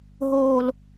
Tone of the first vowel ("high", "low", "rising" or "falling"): low